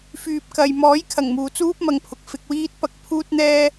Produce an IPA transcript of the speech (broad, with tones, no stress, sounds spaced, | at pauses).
f yː˨ p̚ k ɐ˨ j m ɔː˨˥ j kʰ ɐ˨˩ ŋ m uː˨ t͡s uː˥ p̚ m ɐ˨ ŋ pʰ ʊ˨ k̚ f ɪ˧ k̚ w iː˥ t̚ p ɐ˧ k̚ pʰ uː˥ t̚ n̪ ɛː˥